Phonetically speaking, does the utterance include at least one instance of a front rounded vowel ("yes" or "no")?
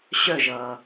yes